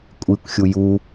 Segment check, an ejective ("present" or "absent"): present